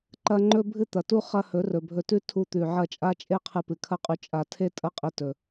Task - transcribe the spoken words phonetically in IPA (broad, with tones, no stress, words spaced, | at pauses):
ǃɐ˦ ŋ͡ǃɵ˦ bʱɨ˦t̪ɐ˨tu˦ χɐ˦ hɵ˨˦rɵ˨bʱɵ˧tʉ˦ tʰu˧t̪ʉ˨ ʕɐ˦˨t͡ʃʼa˦t͡ʃʼe˦qʰɨ˧ pɨ˨kʰɐ˦qʼʉ˧ t͡ʃʼa˧tʰe˦tʼɐ˦qʼi˧ tɵ˧